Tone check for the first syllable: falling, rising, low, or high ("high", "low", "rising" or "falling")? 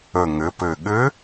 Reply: low